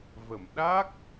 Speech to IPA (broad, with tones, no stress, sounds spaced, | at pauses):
v ə˨˩˨ m ɗ a˦˥ k̚